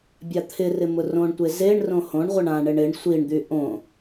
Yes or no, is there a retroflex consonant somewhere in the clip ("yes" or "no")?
yes